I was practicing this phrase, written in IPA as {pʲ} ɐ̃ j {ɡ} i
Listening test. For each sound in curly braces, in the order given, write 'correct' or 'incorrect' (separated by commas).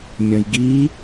incorrect, correct